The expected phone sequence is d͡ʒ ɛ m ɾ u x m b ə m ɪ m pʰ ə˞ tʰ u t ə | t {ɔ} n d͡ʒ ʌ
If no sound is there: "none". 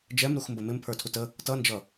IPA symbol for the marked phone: ʌ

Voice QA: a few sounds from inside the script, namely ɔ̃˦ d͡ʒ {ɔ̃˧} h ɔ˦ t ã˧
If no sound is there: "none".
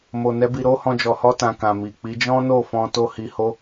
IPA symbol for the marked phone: ɔ˧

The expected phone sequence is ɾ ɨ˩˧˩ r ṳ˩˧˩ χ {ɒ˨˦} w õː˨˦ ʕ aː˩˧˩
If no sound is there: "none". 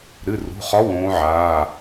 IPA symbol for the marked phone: ɒ˨˦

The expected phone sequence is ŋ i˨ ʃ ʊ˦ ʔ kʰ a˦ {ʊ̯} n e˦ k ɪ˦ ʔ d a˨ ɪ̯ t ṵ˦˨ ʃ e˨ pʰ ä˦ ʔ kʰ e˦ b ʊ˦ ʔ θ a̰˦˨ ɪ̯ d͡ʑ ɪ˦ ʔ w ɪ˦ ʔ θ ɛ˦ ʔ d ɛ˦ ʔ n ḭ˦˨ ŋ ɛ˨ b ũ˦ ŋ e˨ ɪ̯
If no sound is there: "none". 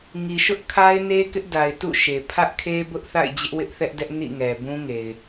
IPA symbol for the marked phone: ɪ̯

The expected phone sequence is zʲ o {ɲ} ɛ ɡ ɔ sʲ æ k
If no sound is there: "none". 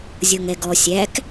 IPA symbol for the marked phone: ŋ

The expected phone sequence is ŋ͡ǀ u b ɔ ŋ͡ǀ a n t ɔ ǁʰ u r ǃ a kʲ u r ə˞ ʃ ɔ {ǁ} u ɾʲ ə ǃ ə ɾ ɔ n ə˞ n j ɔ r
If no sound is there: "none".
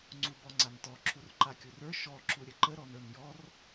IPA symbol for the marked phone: ǁ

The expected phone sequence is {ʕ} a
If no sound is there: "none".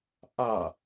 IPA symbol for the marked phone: ʔ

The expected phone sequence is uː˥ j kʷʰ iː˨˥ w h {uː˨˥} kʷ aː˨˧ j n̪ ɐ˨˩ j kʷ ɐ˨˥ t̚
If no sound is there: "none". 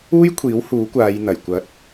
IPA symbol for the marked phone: uː˨˥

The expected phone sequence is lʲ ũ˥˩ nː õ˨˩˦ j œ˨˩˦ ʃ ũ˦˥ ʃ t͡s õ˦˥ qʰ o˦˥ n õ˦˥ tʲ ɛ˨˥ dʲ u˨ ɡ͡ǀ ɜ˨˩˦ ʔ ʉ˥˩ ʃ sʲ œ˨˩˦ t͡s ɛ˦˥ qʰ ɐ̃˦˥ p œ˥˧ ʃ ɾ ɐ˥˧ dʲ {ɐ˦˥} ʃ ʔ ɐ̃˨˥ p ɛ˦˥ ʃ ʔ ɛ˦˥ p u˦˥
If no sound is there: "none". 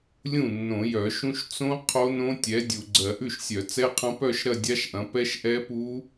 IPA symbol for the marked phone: a˦˥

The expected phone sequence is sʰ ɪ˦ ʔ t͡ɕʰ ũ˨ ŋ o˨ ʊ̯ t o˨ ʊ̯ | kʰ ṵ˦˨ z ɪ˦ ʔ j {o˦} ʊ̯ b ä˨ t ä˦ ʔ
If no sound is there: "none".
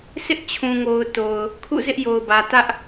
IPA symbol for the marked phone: o˨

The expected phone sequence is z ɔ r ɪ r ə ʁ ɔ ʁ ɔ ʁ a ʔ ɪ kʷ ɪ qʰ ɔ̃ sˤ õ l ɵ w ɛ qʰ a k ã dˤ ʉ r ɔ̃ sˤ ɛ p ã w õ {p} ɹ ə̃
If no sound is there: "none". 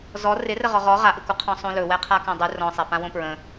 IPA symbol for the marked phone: p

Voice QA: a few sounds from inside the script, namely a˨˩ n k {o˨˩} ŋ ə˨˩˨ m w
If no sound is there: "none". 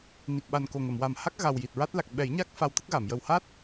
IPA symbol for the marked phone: o˨˩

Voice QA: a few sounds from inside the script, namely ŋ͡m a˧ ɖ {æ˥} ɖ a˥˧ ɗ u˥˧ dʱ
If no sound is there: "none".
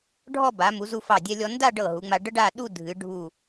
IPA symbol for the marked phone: ə˥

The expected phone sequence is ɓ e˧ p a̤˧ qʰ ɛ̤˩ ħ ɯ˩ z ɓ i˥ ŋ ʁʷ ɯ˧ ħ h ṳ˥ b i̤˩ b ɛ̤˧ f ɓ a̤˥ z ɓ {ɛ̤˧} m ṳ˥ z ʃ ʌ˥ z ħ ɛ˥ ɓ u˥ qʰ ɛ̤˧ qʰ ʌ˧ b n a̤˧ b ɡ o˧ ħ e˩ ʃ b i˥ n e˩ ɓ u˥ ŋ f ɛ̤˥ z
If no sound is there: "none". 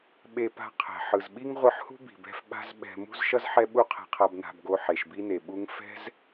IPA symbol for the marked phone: ɛ̤˧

